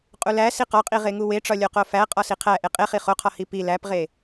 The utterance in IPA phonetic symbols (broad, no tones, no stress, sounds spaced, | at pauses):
qʼ u l æ s i q ɒ qʼ i ʁ e ŋ u w e ʈ͡ʂ ɒ lʲ o q o f æ qʼ ɒ s i qʰ æ ʔ e qʼ e χ i χ o qʰ ɒ h i p i l æ p ʁ e